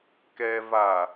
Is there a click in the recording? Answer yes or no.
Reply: no